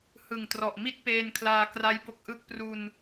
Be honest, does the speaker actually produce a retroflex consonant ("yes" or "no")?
no